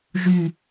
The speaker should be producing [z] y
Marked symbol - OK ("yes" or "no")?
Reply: no